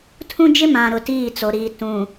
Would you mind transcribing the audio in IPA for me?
tʰ ũ˦ d͡ʒ ɪ˦ m ã˨ ɾ ʊ˨ t iː˦˨ t͡s o˨ ɾ iː˨ t ũ˨

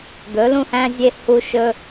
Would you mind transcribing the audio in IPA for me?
d̪ ɵ˧˥ l ũ˥ h æ̃˥ zʲ e˥ h u˥ ʃ ɵ˥

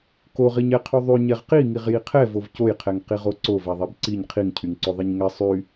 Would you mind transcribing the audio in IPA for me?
k o ʁ i ɲ ɛ qʰ y ðˤ y ɲ ɛ ʁ q i ŋ i ʁ j i qʰ ɛ v o v c o j qʰ ɛ ŋ q i ʁ o ǀ o v ɛ ðˤ ɛ b ǀ i ɲ qʰ i ŋ cʰ y ŋ ǀ o ðˤ i ɲ ŋ ɛ sˤ y

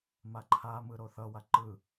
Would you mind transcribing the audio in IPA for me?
m a ǃʰ a m ɯ ɾ o θ ʌ w a ǃ ɯ

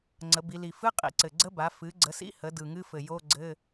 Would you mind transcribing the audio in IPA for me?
ŋ͡ǀ ə˩˧ b i˩˧ l i˨˩ f ɨ˧˥˧ qʼ ḭ˨˩ ǀ ɘ˨˩ ɡ͡ǀ ə˦˥ b a˩˥ f ɨ˩˥ ɡ͡ǀ ə˩˥ s ḭ˧˥˧ h ə˩˥ d ɯ˨˩ ŋ ɨ˧˥˧ f ɘ˨˩ j o˧˥˧ ɡ͡ǀ ɘ˧˥˧

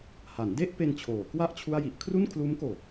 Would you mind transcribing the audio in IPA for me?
h a˩˦ n d e˥˩ ʔ p e˧ n t͡ɕʰ oː˩˦ k w a˥˩ ʔ t͡ɕʰ u˥˩ a̯ j i˦˥ ʔ kʰ r u˥˩ n kʰ l uː˦˥ m k oː˨˩

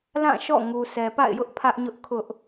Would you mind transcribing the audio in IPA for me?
l ã˦˨ ʃ ɔ̰˦˨ ŋ u˨ s ɛ˨ p a̰˦˨ ɪ̯ j ʊ˦ ʔ pʰ ä˦ ʔ ɲ ʊ˦ ʔ kʰ ʊ˦ ʔ

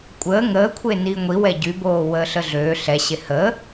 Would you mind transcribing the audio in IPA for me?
kʷʼ əː ŋ əː kʷʰ e n iː ŋʷ i w ɛ ɟ y b oː w əː ɬ ə ɮ øː ɬ ɛ ɕ e h əː

